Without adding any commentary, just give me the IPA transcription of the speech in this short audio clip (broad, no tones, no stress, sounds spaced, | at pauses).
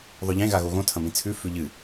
ðˤ ɵ ʎ ẽ ɣ a ɣ o ɣ õ tʰ ɐ̃ m ĩ t͡sʰ ʉ f ʉ ʎ ɨ